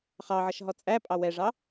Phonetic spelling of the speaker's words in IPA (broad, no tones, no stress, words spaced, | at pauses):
χɑʕʌʃ ɦɔt͡sʼæpʼɑ wɛʐɑ